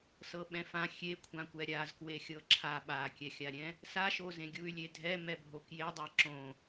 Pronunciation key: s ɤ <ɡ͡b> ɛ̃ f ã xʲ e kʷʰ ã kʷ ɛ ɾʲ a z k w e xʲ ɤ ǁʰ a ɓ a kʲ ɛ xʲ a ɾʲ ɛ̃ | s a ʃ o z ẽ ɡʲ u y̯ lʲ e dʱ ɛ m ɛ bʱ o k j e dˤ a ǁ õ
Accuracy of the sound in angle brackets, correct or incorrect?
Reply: incorrect